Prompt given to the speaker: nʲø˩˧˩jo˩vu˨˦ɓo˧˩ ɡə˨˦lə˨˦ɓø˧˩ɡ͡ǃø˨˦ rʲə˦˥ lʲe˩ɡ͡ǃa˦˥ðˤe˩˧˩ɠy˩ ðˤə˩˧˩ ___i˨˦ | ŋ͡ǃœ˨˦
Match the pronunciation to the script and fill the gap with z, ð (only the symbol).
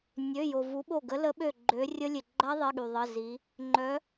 z